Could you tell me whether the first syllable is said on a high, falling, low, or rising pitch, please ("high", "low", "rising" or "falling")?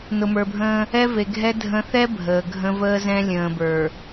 low